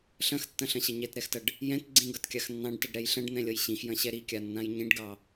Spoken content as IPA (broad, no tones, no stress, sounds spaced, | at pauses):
ɬ ɐ̃ x tː ɐ̃ ɬ ɐ̃ ɕ ɐ ɲ ɛ t ɾ ɛ x t ɐ ɖ | j ɛ̃ t ɡ͡ǀ ĩ ɡ ʌ t kʲ a x nː ɑ̃ ɖ t ʌ ɖ ɾ ɛ j ɬ ɐ̃ ɖ n̪ ɛ̃ lʲ ʌ j ɕ ĩ x j ɐ̃ ɕ ɛ ɾ i kʲ a nː ã j ɲ ĩ ɖ ɡ ɑ